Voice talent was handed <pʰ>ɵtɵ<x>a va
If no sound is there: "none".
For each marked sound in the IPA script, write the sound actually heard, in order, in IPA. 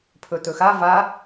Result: pʰ, x

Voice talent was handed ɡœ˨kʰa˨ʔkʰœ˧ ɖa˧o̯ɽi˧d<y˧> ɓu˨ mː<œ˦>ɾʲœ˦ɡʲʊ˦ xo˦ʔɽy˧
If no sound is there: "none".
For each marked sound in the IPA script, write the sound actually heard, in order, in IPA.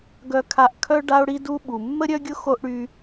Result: u˧, ə˦

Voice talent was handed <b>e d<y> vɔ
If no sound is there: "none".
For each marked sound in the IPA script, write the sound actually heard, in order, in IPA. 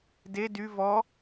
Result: d, y

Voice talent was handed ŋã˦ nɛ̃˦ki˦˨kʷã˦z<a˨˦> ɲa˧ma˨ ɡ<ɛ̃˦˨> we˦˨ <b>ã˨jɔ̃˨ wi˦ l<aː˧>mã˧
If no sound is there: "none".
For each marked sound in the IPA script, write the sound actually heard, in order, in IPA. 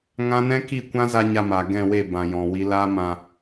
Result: a˧, ɛ̃˦˨, b, aː˦

